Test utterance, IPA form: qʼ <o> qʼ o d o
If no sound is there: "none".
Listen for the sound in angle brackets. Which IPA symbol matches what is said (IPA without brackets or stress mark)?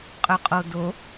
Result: ɵ